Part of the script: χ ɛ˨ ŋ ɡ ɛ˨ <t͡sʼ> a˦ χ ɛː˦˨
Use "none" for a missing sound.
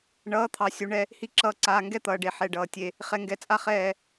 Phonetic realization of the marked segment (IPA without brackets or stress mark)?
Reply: t͡sʼ